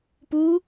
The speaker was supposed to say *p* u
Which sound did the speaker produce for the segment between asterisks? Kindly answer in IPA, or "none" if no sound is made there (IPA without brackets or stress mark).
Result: p